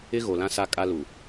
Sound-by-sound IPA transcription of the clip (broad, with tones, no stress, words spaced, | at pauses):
ɪ˦ɣo˨lã˦ sa˦ kʼa˦lu˨